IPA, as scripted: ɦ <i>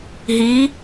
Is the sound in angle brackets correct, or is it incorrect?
correct